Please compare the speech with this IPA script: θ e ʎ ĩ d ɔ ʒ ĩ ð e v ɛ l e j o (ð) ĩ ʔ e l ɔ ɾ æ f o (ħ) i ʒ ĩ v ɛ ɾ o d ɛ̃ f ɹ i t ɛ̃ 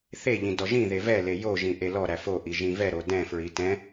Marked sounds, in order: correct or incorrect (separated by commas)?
incorrect, incorrect